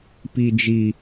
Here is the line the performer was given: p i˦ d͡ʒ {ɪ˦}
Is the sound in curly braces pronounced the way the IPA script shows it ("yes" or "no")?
no